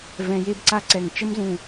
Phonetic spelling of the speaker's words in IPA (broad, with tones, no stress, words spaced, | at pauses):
vɛ̃˧ je˥bǀa˥ǀɛ˧˩ŋ t͡ʃə˥mzũ˧˩